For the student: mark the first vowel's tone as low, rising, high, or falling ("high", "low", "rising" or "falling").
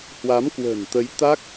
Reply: rising